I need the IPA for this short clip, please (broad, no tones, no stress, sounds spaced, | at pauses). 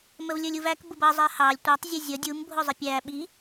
m ə v lʲ ə˞ lʲ u v æ k b ʊ b ʌ zˤ ɛ h ɑ lʲ tʷ ɑ tˤ zʲ ə zʲ ʌ dʲ u m bʱ ʊ zˤ ɪ pʲ æ ɓ i